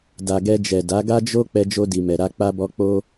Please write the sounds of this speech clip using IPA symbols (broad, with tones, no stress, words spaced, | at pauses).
da˨ɡɛ˧d͡ʒɛ˨ da˨˦ɡa˦ d͡ʒo˧ k͡pɛ˧d͡ʒo˧di˨ mɛ˨ɾa˧k͡pa˧bɔ˧ k͡po˧